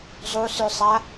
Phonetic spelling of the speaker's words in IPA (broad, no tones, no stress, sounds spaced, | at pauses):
zˤ u s ʉ sˤ a